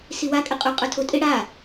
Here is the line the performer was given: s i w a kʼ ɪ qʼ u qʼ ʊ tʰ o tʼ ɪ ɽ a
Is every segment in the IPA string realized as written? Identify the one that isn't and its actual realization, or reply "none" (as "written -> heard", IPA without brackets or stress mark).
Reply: none